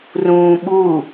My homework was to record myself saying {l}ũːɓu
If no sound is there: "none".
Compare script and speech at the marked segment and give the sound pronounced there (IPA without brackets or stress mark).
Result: r